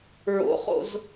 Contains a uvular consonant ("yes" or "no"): yes